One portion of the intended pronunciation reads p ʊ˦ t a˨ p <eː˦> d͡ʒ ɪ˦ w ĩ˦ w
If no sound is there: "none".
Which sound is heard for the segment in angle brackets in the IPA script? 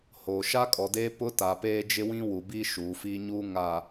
eː˦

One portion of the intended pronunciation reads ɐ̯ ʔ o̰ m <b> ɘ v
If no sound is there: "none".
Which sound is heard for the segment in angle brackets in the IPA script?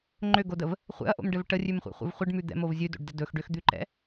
ɖ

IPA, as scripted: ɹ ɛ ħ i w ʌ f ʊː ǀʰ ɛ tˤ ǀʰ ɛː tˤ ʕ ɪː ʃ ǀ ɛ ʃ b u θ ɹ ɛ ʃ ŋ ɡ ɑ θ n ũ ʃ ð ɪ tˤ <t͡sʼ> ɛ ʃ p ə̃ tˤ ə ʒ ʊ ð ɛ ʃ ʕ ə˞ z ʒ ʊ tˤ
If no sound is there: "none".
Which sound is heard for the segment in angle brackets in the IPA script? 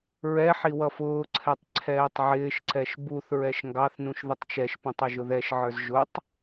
t͡ʃ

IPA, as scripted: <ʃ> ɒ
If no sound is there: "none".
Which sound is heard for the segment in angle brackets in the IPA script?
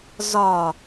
z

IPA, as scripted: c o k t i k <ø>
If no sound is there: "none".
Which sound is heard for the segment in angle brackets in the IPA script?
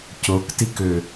ø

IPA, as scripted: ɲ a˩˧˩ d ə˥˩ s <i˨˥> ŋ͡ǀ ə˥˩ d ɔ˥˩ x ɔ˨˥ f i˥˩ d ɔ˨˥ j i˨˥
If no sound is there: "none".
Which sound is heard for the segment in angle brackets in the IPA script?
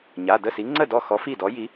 i˨˥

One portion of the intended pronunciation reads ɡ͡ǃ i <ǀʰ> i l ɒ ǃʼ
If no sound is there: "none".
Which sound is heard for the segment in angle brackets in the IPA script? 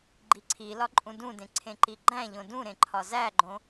ǀʰ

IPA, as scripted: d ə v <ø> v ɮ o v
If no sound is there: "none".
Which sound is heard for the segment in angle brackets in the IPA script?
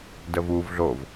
u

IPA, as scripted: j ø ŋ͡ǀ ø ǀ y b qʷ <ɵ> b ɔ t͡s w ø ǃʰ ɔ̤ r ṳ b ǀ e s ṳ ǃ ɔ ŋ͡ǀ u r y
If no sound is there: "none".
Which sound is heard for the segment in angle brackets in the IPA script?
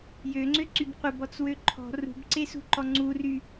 ə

